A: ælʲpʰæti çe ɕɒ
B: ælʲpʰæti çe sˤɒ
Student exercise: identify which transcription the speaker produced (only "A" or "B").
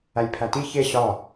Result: A